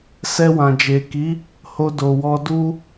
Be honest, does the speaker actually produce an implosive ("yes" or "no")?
no